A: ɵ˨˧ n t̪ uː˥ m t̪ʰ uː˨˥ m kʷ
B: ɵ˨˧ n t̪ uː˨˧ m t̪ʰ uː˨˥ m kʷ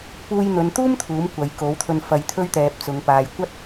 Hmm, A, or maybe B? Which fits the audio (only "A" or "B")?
A